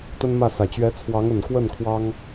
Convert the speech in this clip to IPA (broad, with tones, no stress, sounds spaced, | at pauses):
t̪ ə˥ n m ä˥˩ s ä˨˩ t͡ɕ ɥ ɛ˧˥ t͡sʰ w ɑ˧˥ ŋ ə˨˩ n k w ə˥˩ n kʰ w ɑ˥ ŋ